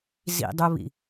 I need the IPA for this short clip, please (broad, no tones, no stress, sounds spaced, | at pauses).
z ḭ dˤ u β ḭ